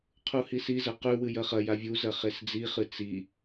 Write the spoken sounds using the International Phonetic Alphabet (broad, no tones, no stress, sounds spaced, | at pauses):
qʰ u h i s i z ɐ q ʉ w ɨ j ɐ χ ɐ j a vʲ u z ɐ χ e s d͡z i χ ɨ t͡s i